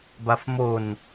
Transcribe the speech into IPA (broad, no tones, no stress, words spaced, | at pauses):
bafmon